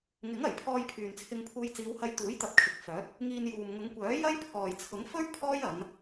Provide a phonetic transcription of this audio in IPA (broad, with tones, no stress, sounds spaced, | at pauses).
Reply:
ŋ ɪ˨˥ ŋ ɐ˨˩ j pʰ ɔː˧ j pʰ yː˨ n t͡sʰ ɪ˧ ŋ pʰ uː˧ j t͡s iː˨˧ w h ɐ˧ j t̪ uː˨˥ j t̪ ɐ˨ p̚ kʰ ɪ˨˥ k̚ f œː˨˥ t̚ | ŋ iː˧ n j uː˨ m ŋ ʊ˨˧ ŋ kʷ œː˨˥ j ɐ˥ j pʰ ɔː˨ j t͡sʰ ʊ˨˥ ŋ f ɵ˥ ɥ pʰ ɔː˥ j ɐ˨˧ n